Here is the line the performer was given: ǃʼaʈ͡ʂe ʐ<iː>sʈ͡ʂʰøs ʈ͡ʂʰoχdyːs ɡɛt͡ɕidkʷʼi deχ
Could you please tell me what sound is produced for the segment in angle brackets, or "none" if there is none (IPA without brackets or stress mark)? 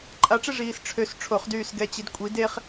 iː